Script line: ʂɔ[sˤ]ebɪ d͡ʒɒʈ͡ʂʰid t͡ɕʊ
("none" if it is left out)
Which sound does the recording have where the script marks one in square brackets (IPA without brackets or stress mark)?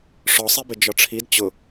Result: sˤ